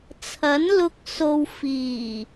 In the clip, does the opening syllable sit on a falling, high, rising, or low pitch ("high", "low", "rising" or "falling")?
rising